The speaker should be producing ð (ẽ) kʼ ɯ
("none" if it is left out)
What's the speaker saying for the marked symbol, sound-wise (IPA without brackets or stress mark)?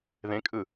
ẽ